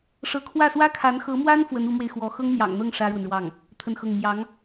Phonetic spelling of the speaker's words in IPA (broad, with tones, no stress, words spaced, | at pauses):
ʂɤ˧˥kʰwä˥˩swä˥kʰa˧˥n xɤ˧˥mwa˥n fwə˧˥n u˧˥mwe˧ɪ̯ xwɔ˧˥ xɤ˥ŋn̪jɑ̰˨˩ŋn̪ɤ˥˩ŋ ʂä˥ɻwə˨nɻwɑ˥˩ŋ | t̪ʰə˥˧nxɤ˥˩ŋ mjɑ˧˥ŋ